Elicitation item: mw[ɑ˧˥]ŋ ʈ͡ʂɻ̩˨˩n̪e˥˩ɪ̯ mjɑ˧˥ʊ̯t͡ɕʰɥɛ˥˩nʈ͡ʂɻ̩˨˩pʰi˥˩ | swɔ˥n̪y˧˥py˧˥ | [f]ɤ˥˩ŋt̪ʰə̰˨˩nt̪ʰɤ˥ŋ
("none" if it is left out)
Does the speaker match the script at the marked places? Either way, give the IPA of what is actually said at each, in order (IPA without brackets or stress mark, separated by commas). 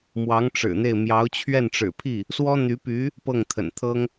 ɑ˧˥, p